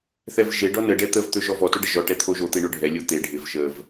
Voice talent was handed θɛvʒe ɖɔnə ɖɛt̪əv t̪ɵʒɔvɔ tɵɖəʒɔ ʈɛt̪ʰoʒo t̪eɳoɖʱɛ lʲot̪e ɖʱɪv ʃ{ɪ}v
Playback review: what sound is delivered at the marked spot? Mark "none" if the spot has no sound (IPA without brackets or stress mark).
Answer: ə